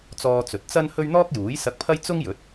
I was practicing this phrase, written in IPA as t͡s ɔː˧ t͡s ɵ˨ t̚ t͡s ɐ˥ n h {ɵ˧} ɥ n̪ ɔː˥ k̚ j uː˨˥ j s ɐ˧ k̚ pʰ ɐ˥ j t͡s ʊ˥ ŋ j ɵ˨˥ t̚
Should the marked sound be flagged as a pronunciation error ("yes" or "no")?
yes